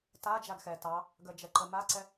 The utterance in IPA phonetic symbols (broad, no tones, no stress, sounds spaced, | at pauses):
t a d͡ʒ a ɡ x ɛ t ɑ | ɡ ə d͡ʒ ɛ ǃ ə m a ǀ ɛ